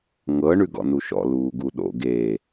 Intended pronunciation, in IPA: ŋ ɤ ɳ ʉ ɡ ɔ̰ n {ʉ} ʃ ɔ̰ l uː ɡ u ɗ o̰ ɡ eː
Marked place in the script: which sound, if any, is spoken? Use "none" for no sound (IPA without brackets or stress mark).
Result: u